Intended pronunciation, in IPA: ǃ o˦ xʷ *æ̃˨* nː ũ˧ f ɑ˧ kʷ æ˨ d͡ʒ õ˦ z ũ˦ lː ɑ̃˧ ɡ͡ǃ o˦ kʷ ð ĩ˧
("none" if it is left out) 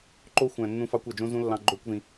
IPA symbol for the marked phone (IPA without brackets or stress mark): æ̃˨